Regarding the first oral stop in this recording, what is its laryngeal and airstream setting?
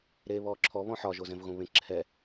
click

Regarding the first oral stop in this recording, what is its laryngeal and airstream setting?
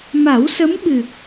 implosive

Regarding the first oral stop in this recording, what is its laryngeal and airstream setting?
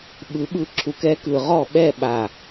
implosive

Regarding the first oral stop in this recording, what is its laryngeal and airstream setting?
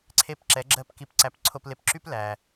click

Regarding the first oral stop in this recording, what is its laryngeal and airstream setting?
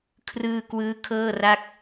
aspirated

